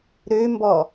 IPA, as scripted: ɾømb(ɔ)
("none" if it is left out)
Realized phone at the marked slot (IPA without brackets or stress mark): ɔ